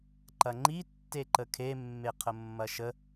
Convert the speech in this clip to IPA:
ǃ ɐ ŋ͡ǃ i tː e ǃ ə kʰ e mː e qʰ ə mː ɐ ʃ ə

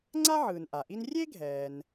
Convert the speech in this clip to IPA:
ŋ͡ǀ a˥ ʕ ɯː˩ n ʔ a˩ ʔ i˥ n rʲ e˥ ɡʱ ɛː˩ n

